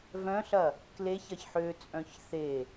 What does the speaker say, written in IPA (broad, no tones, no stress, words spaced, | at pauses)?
vœ̃ɬɐ | kleç ɐçħø t͡sʼœ̃çθe